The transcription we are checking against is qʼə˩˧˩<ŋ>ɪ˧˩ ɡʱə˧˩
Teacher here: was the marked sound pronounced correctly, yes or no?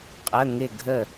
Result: yes